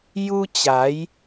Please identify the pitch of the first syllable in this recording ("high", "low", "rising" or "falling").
high